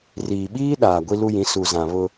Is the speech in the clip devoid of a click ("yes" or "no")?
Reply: yes